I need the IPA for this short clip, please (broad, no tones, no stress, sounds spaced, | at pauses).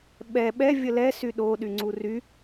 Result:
ɓ ɛ ɓ ɛ vʲ ə l ɛ s y ɗ o ɗ y ŋ͡ǀ u r y